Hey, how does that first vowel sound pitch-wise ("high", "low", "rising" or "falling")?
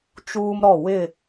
high